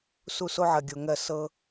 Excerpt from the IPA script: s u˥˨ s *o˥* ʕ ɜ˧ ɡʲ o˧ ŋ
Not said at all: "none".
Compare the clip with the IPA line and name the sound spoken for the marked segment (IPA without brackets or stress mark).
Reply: o˥